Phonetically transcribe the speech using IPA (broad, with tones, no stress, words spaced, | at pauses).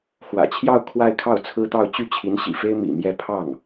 xwä̰˨˩t͡ɕʰjɑ˥˧ʊ̯ kʰwa˥˧ɪ̯kʰɑ˥˩ʊ̯t͡sʰɹ̩˥t̪ɑ˥˧ʊ̯ t͡ɕy˥˩t͡ɕʰi˧˥nɕḭ˨˩fe˥ɪ̯ mḭ˨˩ mjɛ˥˧ pʰɑ˥˩ŋ